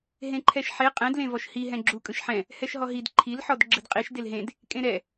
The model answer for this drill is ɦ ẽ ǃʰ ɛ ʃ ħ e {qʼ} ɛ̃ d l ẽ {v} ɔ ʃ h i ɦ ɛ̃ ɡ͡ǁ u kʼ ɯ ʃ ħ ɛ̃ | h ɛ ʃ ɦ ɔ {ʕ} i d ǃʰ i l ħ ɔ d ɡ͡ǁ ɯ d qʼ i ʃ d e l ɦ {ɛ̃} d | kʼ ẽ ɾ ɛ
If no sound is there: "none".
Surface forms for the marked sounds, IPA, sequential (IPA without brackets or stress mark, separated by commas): qʼ, v, ɦ, ẽ